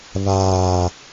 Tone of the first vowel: low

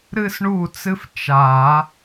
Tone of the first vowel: high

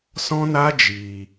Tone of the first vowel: high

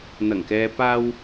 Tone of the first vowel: low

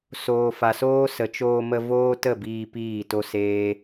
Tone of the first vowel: low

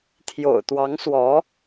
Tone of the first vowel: low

